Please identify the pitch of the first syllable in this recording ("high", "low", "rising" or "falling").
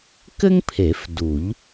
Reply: high